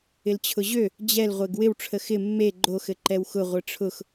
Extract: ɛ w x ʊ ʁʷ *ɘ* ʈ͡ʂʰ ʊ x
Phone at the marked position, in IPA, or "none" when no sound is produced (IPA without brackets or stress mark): ɘ